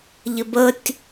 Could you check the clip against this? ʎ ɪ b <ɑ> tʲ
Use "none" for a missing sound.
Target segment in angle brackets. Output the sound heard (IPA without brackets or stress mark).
ə